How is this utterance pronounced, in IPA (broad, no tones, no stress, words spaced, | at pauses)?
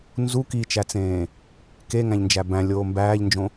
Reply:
nzu kit͡ʃæt͡sẽː | keŋæ̃ʎnd͡ʒæ bæ̃lʲoː mbæːʎnd͡ʒõ